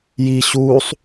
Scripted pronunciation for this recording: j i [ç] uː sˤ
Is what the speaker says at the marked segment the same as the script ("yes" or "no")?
no